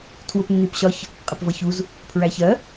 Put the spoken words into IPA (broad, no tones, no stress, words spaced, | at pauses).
tʰwʊpnːipɕɒç | qʼɪpvʌçuz | pʰɹæçɜ